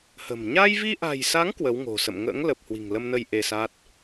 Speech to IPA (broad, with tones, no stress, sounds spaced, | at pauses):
h ə̤˨˩ m ɲ a˧ j v i˧ ʔ a̤˨˩ j s a˨˦ ŋ k w ə˨˦ w ŋ o̤˨˩ s ə̰˧˨ m ŋ ə̰ː˧˥ ŋ l ə˨˩ p̚ h w i̤˨˩ ŋ l ə˧ m n ə˧ j ʔ e˧ s a˦˥ t̚